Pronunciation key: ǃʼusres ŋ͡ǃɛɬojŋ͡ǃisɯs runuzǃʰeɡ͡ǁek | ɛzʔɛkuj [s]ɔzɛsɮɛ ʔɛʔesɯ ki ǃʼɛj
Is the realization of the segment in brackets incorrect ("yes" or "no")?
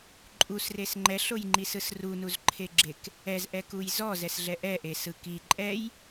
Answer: yes